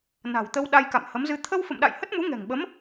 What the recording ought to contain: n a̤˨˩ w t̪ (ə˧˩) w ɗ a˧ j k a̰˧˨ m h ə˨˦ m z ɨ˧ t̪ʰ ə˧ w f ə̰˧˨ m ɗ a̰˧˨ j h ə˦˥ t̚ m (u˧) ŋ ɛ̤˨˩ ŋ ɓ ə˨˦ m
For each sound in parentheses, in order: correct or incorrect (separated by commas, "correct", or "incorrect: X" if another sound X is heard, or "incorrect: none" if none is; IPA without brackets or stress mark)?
incorrect: ə˧, incorrect: u˨˦